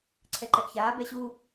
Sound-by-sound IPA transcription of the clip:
ǀʰɛǃɛʔçaː bɛɕu

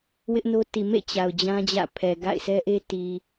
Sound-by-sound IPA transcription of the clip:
wɪ˦ʔno˦ti˨ mḛ˦˨ t͡ɕa˨ʊ̯d͡ʑã˦d͡ʑä̰˦˨pʰɛ˨ ɡa̰˦˨ɪ̯sɛ˦ʔe˦ ti˨

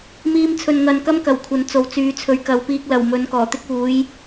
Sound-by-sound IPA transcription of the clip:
miː˧mt͡sʰɵ˨nŋɐ˨n kɐ˧mkɐ˨˩w kʷʰɐ˨˥nt͡so˨˥wt͡syː˨˧ t͡sʰɵ˨˧ɥkɐ˨˧wpiː˧k̚ lɐ˨˩w mɵ˨˥nkɔː˨˩t̪ɪ˥k̚ uː˨˥j

